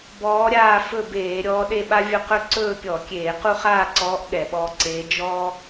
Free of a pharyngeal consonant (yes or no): yes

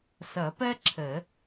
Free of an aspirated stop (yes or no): no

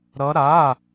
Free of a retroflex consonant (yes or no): yes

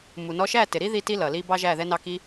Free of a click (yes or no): yes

